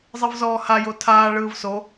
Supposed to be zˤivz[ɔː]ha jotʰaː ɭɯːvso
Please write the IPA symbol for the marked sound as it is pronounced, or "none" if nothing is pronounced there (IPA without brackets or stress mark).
ɔː